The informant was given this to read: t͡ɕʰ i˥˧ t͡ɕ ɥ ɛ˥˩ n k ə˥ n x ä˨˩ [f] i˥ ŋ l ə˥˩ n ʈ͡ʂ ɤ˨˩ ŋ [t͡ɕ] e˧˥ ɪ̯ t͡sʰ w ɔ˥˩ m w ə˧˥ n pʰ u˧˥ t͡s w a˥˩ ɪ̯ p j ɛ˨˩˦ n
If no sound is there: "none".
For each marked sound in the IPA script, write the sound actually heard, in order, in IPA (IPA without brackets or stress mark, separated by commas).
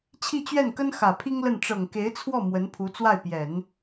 pʰ, k